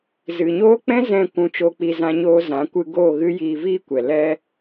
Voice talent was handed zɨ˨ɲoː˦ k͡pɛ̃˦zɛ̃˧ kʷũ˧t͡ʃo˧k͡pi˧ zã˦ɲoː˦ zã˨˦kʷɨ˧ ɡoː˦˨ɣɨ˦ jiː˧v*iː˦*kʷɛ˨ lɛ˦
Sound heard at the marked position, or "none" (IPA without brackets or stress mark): iː˦